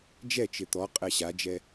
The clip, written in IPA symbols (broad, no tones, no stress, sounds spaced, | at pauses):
d͡ʒ ɛ t͡ʃ ɪ t̪ ɔ qʼ ɛ ɕ a d͡ʒ ɛ